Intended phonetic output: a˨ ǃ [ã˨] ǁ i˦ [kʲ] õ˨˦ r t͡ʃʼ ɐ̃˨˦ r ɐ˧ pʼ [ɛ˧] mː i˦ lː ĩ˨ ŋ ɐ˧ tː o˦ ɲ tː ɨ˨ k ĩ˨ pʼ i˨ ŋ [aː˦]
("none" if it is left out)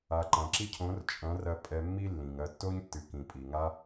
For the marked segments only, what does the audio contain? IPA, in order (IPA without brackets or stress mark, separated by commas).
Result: ã˨, cʰ, ɛ˧, a˦